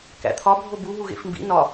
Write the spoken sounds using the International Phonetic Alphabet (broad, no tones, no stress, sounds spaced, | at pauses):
k æ̰ t̪ʰ ɒ bʱ o b u ɦ u ɣ ḛ f m b ḭ n ɒ